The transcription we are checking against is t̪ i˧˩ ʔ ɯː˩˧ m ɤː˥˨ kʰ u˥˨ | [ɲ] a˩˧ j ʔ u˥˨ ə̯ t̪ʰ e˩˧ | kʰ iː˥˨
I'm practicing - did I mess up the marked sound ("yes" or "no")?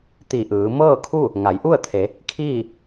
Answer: yes